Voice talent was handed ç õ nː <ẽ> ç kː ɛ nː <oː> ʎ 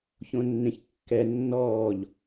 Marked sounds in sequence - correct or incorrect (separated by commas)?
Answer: correct, incorrect